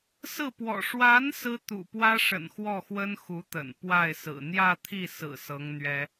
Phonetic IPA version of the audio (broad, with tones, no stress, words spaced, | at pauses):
sɹ̩˥˩pwɔ̰˨˩ ʂwa˧˥n sɹ̩˥ t̪ṵ˨˩pwä˥ ʂə̰˨˩nxwɔ˥˩xwə˥n xu˧˥t̪ə̰˨˩n pwa˥˩ɪ̯sɹ̩˨˩ n̪jä˥˧t̪ʰi˥˩sɹ̩˨˩ sɤ˧˥ŋ n̪ɥɛ˥